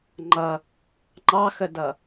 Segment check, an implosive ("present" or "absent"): absent